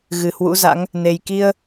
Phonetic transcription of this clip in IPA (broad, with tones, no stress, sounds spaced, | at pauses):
ɣ ɨ˨˩ h w ṵ˧˥ z a̰˧˥ ŋ | n e˨˩ j k i˧ ə̯